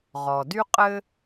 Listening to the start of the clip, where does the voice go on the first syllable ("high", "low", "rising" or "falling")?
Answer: low